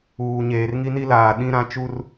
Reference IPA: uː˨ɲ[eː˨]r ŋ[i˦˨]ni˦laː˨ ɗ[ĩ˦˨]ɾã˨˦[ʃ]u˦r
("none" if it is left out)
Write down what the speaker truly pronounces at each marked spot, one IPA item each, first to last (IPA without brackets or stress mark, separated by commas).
eː˨, i˦, ĩ˦, t͡ʃ